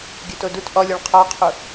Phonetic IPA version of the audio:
ɡʲ œ t o d u t ʔ ɔ lʲ ɔ ɭ qʰ ɔ qʰ u

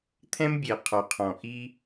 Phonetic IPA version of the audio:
t̪ʰ ɛ̃˦ m bʲ e˨ qʰ ɒ˨ qʰ ɔ̃˨ ʔ i˦

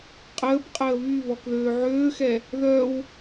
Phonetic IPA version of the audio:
qʼ əː b qʼ əː β y β ɔ k ð øː ʕ øː x ɛ | ð œ w

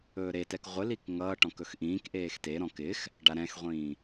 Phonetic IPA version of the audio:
ɵː ɾ e t ɛ k ʁʷ ɪ l i k ŋ ʌː ʈ ɔ̃ k ɵ x ʔ ĩː k ʔ eː x t e ɾ ɔ̃ k ɪ x | ɖ a ɾ ɛ̃ x ʁʷ ĩː

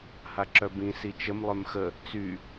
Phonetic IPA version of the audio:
h a ǁ œ b ĩ s i t͡ʃ ə m lˠ œ m x ə | t͡s y

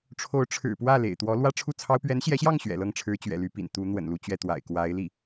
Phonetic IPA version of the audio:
ʈ͡ʂʰ o˧˥ ʊ̯ ʈ͡ʂʰ ɻ̩˨˩ p w ä˥˩ l ḛ˨˩ ɪ̯ t̪ w ɔ˧˥ l w ä˥ ʈ͡ʂʰ u˥˩ t͡sʰ ɑ˥ ʊ̯ p ɥ ɛ˧˥ n ɕ j ɛ˧˥ ɕ j ɑ˥˩ ŋ ɕ ɥ ɛ̰˨˩ l ɤ˥˩ ŋ ʈ͡ʂʰ ɻ̩˥ t͡ɕ ɥ ɛ̰˨˩ l y˥ p ḭ˨˩ n t̪ u˧˥ n̪ w ə̰˨˩ n l u˥˧ t͡ɕ ɥ ɛ˥˩ t̪ w a̰˨˩ ɪ̯ k w a˧˥ ɪ̯ l i˥˩

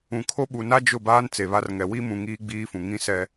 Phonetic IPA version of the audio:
ũ˨ kʰ o˦ ɓ u˨ n a˦ d͡ʒ ʊ˦˨ b aː˦ n t͡s e˨ β a˦ r ŋ ɛ˨ w i˦ m ũ˨ ŋ iː˦ ɡ͡b iː˦ f ũ˨ ŋ ĩ˦ s ɛ˦

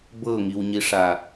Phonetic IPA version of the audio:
b ɤ ŋ i w ɲ i ʂ a

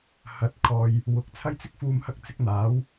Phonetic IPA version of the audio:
h ɐ˨˥ t̚ kʰ ɔː˨ j | w ʊ˨˥ k̚ t͡sʰ ɐ˥ j t͡s ɪ˥ k̚ f uː˧ m h ɐ˥ k̚ t͡s ɪ˥ k̚ n̪ aː˨˥ w

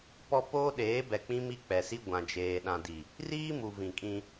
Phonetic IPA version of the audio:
p ɔ˦ p oː˦ ɗ eː˨˦ b ɛ˨ k͡p ĩ˦ m i˦ k͡p ɛ˨ s i˦ ɡʷ ã˨ d͡ʒ eː˨ ɗ ã˨ d i˨ | r iː˦ m u˨ v ĩ˨ kʼ ĩ˦

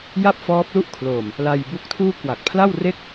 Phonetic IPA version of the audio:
j a˥˩ p̚ f ɔː˦˥ p̚ l u˥˩ ʔ kʰ l oː˧ m | l a˧ j b u˦˥ k̚ tʰ uː˥˩ k w a˨˩ k̚ pʰ l a˥˩ w r e˥˩ k̚

